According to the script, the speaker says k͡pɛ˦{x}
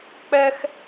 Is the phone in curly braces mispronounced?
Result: no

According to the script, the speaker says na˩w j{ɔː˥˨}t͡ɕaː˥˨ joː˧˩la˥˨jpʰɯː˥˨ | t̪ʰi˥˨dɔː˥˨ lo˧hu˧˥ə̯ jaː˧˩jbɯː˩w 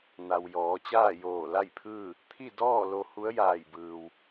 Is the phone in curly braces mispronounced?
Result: yes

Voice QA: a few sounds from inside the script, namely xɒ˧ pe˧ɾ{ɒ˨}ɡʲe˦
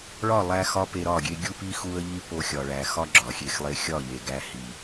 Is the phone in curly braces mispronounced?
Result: yes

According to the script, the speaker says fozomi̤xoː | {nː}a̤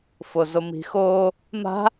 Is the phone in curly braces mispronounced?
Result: yes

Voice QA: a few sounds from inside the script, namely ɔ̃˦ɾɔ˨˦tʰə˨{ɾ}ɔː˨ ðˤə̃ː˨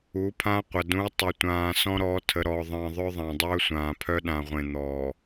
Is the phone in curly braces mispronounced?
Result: no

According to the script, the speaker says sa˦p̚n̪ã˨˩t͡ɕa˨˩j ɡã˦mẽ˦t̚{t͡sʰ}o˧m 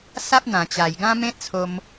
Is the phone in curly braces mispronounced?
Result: no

